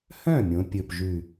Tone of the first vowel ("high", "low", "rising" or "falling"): falling